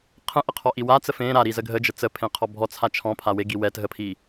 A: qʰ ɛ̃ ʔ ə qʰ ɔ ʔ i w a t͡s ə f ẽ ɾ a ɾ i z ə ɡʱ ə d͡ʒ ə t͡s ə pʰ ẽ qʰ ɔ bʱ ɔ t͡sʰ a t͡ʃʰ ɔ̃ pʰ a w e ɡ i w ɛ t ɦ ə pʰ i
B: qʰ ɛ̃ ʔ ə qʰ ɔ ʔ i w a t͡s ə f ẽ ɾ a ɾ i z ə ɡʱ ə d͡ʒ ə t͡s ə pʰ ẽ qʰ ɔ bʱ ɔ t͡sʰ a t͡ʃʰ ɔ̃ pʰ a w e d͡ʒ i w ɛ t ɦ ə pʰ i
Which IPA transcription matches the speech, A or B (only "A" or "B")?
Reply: A